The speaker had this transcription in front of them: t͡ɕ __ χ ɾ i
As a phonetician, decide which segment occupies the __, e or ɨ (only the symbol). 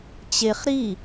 e